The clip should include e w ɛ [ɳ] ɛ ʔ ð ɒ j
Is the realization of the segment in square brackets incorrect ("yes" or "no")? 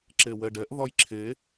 yes